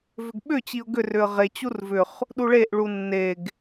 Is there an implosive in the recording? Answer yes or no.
yes